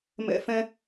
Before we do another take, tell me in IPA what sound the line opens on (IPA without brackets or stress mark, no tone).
m